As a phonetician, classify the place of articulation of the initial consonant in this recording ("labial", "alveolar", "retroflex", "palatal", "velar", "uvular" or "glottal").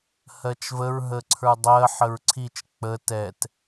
glottal